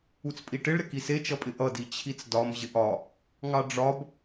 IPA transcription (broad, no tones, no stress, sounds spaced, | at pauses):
u t͡s pʼ i ʈ ɪ ɭ ɾ ɪ k i s e t͡ʃ ʌ pʼ ɪ ʔ ʌ d i t͡ɕʰ i t͡s d ɒ m ʑ ɪ ʔ ɒ | ŋ ɑ ɖ͡ʐ ɒ b